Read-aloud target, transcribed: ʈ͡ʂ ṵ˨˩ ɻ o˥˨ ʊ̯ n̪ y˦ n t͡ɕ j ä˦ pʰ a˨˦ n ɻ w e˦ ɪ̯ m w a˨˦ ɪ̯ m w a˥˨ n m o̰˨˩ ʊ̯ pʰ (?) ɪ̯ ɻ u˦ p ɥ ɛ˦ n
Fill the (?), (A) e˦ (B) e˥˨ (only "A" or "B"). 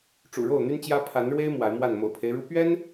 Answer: A